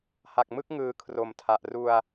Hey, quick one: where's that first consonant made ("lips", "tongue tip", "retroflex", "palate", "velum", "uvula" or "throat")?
throat